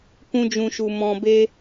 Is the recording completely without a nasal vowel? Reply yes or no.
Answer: no